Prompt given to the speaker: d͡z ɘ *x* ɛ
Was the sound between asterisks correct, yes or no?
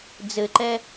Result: no